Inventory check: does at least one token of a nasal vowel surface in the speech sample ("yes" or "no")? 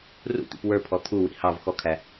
no